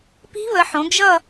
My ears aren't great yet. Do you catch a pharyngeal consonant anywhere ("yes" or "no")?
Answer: yes